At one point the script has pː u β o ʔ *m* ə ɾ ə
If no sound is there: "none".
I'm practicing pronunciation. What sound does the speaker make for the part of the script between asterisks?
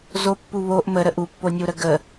m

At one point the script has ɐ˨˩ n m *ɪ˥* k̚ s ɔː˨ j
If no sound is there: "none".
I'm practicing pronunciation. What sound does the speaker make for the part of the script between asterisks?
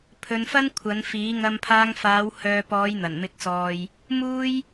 ɪ˨˥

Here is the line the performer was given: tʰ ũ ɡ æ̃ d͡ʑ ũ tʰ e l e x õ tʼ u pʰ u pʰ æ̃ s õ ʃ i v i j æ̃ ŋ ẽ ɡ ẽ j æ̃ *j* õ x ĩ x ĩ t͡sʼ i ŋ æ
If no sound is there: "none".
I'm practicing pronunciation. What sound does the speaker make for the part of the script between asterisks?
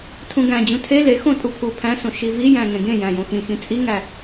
j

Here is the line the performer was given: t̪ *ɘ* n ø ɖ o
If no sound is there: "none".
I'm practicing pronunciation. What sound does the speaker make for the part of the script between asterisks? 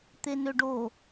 e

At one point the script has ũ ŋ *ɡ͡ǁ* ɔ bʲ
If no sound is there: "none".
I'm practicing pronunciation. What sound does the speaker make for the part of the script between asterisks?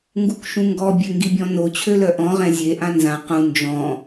ɡ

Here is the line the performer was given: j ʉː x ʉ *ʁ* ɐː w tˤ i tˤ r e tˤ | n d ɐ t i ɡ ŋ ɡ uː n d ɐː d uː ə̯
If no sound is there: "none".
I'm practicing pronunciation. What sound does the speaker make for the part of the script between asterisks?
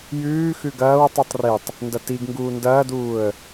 ɡ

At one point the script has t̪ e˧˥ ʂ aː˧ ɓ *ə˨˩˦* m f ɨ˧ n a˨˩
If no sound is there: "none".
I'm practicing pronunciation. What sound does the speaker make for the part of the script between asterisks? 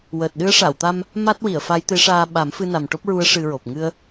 a˨˩˦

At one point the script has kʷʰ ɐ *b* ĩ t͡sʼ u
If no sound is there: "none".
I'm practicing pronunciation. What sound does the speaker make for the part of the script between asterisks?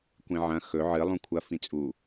f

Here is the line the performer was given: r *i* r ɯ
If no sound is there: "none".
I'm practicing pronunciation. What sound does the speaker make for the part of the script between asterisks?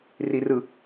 i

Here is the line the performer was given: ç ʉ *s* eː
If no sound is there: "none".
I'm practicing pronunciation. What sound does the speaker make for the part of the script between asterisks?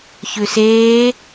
s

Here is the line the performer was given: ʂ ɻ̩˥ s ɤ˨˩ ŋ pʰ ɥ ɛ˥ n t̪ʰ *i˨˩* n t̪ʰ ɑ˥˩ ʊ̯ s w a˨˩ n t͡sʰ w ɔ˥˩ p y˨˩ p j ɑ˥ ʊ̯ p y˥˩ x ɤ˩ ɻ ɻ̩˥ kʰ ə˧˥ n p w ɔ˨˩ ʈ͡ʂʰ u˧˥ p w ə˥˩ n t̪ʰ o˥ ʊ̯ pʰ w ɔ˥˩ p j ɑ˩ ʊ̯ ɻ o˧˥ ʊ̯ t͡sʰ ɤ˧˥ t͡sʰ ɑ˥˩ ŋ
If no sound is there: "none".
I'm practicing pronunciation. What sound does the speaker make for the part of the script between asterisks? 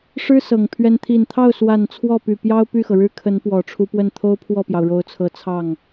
i˨˩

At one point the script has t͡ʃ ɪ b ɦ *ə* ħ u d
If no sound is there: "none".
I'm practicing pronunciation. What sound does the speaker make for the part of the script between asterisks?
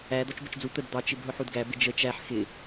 ʊ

